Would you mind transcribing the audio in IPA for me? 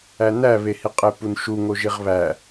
æ n æ β e h i qʼ e p u n ʃ u ŋ o ʒ i ʁ β æ

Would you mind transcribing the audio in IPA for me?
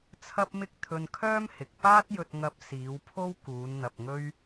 t͡sʰ ɐ˥ p̚ m ɪ˥ k̚ t̪ʰ ɵ˧ n kʰ œː˥ m h ɪ˨ k̚ p aː˥ t̚ j ɵ˧ t̚ ŋ ɐ˧ p̚ s iː˨˧ w pʰ o˥ w k uː˨˧ n n̪ ɐ˧ p̚ ŋ ɵ˥ ɥ

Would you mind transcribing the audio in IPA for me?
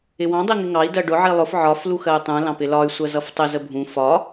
ɪ w ɑ̃ dˤ i ŋ ɪ ŋ ɑ i̯ d ɜ ɖ ʊ ʕ i lˠ ʊ f ʕ ɒ f l u x ɜ y̯ tˤ ũ l ɑ̃ p ɪ l ɒ y̯ sʷ ɜ z ʌ f tˤ ɪ z ə bʱ ũ f ɒ

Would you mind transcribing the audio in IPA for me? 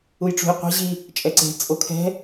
u j ʈ͡ʂ ṳ j qʷ ɛ̤ ʑ i | t͡ʃʼ ɛ ǀ e̤ t͡sʼ o kʰ ɛ̤

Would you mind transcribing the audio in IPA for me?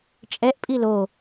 t͡ʃʼ ɛ ʔ pʼ i l o

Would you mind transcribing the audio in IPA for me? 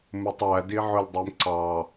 m u tˤ æ d i ʕ ʊ l dˤ i m ǀ ɑ

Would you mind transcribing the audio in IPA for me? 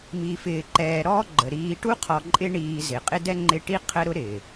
m i˨ f ɪː˨ ǃ ɛː˨ ɾ ɔː˥ ɡ͡ǃ ə˩ ɾ iː˨ ʈ u˦ qʰ ɔ˨ ǃʼ ɪ˦ ɳ iː˨ z ɪ˩ qʼ ɪ˦ d ɛ˥ ŋ͡ǃ ɪ˦ ʈ i˥ qʰ ə˦ ɾ ʊ˥ ɾ ɪː˩

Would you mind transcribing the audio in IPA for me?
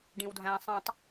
ɖ ĩ w dʱ æ̃ sˤ ĩ tˤ

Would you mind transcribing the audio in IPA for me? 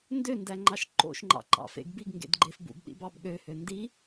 n d ø n d æ ŋ͡ǃ ɑ ʃ ǃ o̰ ʃ ŋ͡ǃ ɑ̰ ǃ ɑ̰ f ḛ ɡ b i ɡ ŋ ɡ ḛ d ɡ͡ǃ e f b ṵ b ɗ ḭ b ɑ b ɠ ø h ø n d i

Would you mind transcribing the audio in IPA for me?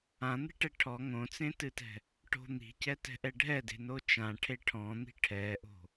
ã n̪ e̤ ʈ ɛ ʈʰ ɔ ŋ õ t͡s ẽ t ɨ t ɛ̤ | ʈ o̤ n̪ i̤ c ɛ t ɛ̤ ʔ ɛ ɖʱ ɛ d e̤ n o t͡ʃ ã ʈʰ e ʈʰ ɔ̃ n̪ i̤ ʈʰ ɛ ʔ o̤

